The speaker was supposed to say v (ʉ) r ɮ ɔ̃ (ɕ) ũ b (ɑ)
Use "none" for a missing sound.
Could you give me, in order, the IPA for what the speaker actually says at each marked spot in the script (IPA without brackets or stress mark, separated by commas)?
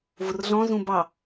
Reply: ʊ, z, ɑ